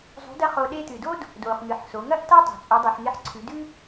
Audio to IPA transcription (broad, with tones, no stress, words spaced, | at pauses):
zˤṳ˧˥dɐ˥χo˧ ɗe˧tɨ˩do˥d | doː˩χŋɨ˩ħso˩˧ ŋɐ˥ʔta˥tˤo̤˩ t͡sʼu˩˧dˤʉ˩ħŋe˧˥ħǀʰʉ˩˧ dʉ˥